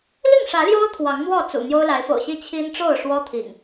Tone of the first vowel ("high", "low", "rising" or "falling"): falling